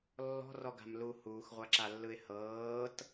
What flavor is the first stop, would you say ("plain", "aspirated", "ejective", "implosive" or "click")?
plain